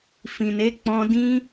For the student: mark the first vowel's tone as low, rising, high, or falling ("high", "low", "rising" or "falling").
low